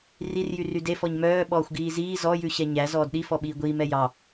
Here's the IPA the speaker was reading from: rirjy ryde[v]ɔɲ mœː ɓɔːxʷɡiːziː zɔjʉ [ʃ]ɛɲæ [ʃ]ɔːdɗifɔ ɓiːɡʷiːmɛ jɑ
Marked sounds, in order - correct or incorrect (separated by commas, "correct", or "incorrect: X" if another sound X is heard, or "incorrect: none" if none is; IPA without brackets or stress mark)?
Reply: incorrect: f, incorrect: ɕ, incorrect: z